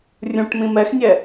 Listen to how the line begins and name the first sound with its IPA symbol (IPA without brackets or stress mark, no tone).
rʲ